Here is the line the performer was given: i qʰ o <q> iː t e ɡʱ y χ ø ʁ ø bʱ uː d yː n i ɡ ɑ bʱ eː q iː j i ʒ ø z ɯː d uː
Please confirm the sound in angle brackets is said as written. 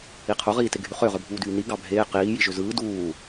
no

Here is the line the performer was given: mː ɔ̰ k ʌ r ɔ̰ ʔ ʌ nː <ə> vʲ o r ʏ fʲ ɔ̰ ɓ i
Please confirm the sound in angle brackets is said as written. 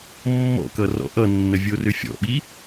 yes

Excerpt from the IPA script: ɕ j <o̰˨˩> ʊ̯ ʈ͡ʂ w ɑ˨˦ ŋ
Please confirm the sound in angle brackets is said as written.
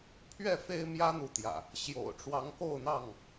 yes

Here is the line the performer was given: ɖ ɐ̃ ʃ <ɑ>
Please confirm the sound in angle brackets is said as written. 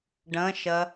no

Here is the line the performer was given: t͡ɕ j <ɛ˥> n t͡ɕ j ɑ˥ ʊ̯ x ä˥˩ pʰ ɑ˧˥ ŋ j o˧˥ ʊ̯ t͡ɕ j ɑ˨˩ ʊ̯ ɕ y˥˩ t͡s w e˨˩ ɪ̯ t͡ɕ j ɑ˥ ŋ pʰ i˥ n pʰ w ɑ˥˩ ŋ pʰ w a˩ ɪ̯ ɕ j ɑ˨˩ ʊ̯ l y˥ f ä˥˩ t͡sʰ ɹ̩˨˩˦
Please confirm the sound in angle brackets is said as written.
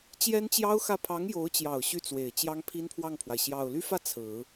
yes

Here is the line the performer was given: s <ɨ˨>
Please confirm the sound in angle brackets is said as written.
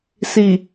no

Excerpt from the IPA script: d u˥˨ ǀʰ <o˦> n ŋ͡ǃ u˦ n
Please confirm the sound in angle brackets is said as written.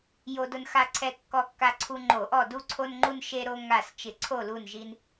yes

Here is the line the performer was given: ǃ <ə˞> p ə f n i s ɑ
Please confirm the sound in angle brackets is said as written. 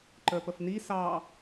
yes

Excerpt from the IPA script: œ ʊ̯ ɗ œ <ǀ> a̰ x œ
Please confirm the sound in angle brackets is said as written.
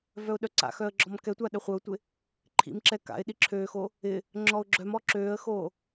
yes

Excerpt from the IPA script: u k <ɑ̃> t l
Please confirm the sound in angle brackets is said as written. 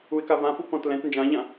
no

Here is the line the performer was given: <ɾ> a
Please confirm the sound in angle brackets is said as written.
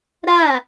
yes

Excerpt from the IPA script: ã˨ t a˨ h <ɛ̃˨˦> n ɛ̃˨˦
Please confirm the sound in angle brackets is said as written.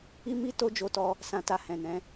no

